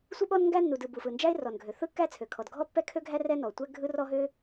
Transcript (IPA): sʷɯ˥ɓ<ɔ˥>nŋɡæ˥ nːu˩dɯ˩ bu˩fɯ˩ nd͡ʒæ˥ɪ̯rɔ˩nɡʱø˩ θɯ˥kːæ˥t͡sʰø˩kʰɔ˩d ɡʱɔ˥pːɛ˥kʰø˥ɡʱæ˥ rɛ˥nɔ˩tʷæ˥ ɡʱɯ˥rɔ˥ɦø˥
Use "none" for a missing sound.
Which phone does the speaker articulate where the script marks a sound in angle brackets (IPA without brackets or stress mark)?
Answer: ɔ˥